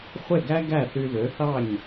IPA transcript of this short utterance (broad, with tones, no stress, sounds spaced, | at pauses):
χʷ e˥˩ ɡ æ˥ ɡ æ˥˩ θ y˧ ð ø˩˥ θ ɑ˥˩ ɲ